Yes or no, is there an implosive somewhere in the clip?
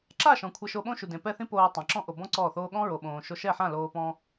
yes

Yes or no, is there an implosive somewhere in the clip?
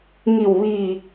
no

